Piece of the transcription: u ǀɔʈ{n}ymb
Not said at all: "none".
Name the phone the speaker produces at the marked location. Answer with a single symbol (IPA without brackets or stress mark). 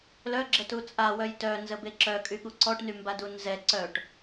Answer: n